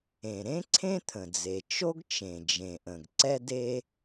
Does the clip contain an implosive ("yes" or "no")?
no